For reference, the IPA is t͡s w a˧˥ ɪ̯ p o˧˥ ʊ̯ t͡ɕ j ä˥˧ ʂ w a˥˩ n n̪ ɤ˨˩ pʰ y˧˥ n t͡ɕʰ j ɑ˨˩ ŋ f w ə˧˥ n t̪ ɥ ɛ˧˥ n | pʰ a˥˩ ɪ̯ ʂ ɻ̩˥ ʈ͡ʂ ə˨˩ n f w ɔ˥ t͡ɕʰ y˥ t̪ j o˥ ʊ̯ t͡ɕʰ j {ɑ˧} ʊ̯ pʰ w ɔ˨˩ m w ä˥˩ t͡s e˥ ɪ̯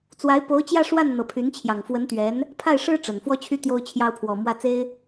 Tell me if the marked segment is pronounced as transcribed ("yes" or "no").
no